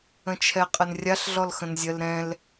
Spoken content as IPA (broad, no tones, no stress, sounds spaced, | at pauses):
ə̃ t͡ʃʰ ɛ qʼ ə n rʲ a ɬ ɮ ɔ l x ə̃ n zʲ ɜ l ɾ ɛ̃ l